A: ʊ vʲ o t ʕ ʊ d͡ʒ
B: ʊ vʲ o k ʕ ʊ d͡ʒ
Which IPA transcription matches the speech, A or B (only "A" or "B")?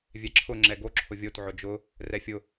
A